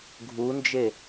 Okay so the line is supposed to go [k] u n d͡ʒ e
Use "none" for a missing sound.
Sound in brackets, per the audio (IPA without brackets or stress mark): ɡʱ